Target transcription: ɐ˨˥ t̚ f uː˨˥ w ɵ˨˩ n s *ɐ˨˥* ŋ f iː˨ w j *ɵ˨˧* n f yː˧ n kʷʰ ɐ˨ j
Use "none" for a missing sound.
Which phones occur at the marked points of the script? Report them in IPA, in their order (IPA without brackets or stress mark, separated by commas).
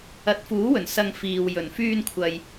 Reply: ɐ˧, ɵ˨˩